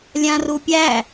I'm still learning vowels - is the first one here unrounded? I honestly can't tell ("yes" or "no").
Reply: yes